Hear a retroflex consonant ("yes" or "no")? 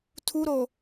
no